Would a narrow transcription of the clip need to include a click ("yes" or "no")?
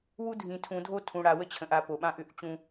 no